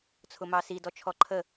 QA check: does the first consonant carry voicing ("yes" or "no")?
no